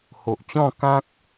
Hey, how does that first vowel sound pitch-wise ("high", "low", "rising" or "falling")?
low